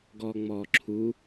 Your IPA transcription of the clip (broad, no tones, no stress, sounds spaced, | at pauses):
ɡ ɔː ŋ͡m ɔː ǁʰ u